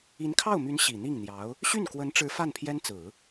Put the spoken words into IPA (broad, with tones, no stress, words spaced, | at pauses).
i˧˥nkʰɑ˥˩ʊ̯my˧˥n ɕi˨˩n̪i˥˩ŋ n̪jɑ˧˥ʊ̯ | ɕy˥˩nkwə˧˥nʈ͡ʂɻ̩˧˥ fa˥˩npʰjɛ˥nt͡sɹ̩˨˩˦